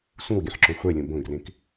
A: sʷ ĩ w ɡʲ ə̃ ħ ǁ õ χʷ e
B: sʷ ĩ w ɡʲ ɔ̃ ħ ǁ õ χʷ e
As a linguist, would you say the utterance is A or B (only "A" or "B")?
A